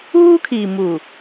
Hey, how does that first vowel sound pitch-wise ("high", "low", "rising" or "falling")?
high